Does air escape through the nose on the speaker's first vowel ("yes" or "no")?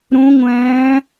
yes